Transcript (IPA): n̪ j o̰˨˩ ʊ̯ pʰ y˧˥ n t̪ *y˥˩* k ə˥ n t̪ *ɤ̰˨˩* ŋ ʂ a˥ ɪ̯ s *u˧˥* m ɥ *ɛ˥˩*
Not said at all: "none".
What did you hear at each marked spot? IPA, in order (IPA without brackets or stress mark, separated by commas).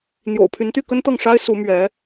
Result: y˥˩, ɤ˥˩, u˧˥, ɛ˧˥